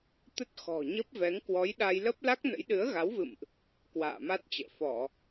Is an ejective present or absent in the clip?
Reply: absent